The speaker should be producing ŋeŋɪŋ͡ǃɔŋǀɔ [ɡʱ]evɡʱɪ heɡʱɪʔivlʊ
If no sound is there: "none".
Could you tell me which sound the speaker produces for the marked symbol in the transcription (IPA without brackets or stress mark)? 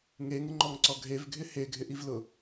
ɡʱ